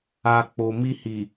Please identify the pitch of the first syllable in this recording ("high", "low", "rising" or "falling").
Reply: low